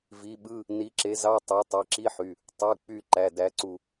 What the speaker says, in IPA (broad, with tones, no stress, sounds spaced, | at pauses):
v i˨˥ ɓ ɯ˧˥˧ | n i˨˥ ǁ e˨˥ z ɑ˧˥˧ tˤ ɑ˨˥ tˤ i˩˧˩ ǁ i˧˥˧ ħ y˩˧˩ | tˤ u˩˧˩ k͡p y˧˩ ǃ æ˩˧˩ d æ˨˥ ǀ u˧˩